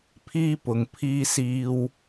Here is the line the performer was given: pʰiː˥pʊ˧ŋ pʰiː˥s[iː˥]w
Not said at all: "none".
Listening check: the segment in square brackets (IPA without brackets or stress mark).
iː˥